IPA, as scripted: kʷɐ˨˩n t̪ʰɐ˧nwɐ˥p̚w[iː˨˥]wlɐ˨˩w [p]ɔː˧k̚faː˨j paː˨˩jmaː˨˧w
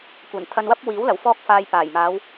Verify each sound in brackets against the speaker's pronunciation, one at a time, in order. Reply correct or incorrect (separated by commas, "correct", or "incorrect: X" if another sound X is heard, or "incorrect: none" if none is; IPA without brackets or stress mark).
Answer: correct, incorrect: f